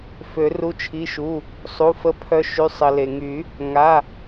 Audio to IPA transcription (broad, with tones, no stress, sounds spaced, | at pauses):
f ø˨˩˦ r u˩˧˩ t͡ʃʰ i˩˧˩ ʃ u˩˧˩ | sˤ u˩˧˩ f ə˨˦ pʰ œ˨˦ ʃ y˩˧˩ sˤ ə˩ l e˩ ŋ y˨˩˦ | ŋ a˩˧˩